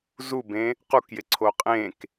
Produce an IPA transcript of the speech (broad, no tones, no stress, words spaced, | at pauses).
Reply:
zubẽ | qukjɪǀʰo qʼẽk